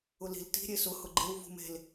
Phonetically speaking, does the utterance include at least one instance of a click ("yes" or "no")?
yes